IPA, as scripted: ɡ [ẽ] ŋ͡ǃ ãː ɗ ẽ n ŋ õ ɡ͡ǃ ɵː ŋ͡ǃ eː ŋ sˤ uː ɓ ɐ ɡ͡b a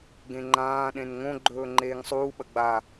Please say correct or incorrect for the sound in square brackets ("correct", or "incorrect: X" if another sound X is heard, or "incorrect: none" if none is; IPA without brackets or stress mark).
correct